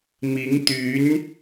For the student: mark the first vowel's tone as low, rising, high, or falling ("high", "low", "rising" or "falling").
rising